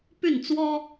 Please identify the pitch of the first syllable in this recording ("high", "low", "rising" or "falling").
falling